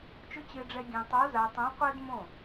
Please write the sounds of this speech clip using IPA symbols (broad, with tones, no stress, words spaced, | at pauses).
t͡ʃʊ˧˥t͡ɕɪː˧ɖ͡ʐɛ˧ ɡʲẽ˧ tˤo˧˥za˧tˤõ˧˥qʷɛ˥d mõ˥˩